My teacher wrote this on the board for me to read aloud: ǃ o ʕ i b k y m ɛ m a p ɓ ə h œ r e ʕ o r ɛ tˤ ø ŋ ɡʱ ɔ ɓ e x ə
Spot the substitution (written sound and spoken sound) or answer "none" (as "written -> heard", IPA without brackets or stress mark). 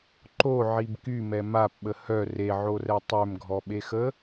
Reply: ŋ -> m